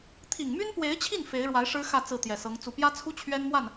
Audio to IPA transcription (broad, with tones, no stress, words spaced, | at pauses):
t̪ʰi˨˩ŋmy˥npwe˧˥ɪ̯t͡ɕʰi˥˩n fe˧˥ɪ̯ɻwa˧˥ɪ̯ ʂɻ̩˥ xä˥˧ t͡sɹ̩˥˩t̪jɛ˨˩sɤ˧˥ŋ t͡su˨˩pjä˥t͡sʰu˥ t͡ɕʰɥɛ˥nmwa˥˩n